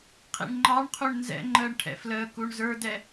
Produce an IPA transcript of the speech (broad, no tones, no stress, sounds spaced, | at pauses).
qʰ ḭ ɳ ŋ͡ǃ ɑ ɳ qʰ u ɳ n z ɛ̰ ŋ͡ǃ əː ɳ ʈʰ ɛ̰ f l əː k u ɳ z ə˞ d ɛ